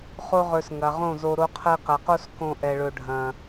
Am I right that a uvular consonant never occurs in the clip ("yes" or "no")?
no